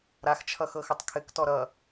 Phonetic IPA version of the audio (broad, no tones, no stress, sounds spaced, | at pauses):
ɾ a x t͡ʃʰ ʌ x ɤ x ɘ tˤ kʰ ɘ k t ɔ ɾ ʌ